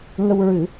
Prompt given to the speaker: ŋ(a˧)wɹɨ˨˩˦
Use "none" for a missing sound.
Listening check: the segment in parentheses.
ə˧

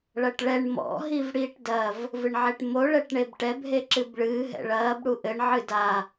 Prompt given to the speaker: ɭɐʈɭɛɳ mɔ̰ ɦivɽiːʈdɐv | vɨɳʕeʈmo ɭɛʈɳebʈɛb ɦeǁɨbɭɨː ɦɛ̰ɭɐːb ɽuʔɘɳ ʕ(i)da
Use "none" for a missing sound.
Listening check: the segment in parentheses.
ɨ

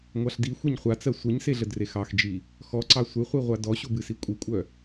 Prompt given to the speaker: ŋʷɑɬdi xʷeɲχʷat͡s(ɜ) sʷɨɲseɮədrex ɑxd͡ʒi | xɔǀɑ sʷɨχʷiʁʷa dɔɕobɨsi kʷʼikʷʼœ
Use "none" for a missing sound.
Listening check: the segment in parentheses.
ɜ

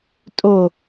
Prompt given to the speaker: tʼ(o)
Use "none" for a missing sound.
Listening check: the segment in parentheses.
o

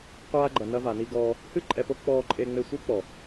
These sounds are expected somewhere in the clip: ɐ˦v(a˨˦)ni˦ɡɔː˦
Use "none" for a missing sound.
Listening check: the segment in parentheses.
a˨˦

